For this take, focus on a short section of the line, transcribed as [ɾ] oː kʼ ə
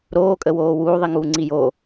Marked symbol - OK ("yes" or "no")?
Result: yes